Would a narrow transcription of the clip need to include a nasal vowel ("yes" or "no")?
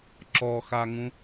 yes